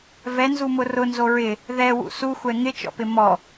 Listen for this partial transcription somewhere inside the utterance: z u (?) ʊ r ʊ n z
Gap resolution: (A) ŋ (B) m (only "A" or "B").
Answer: B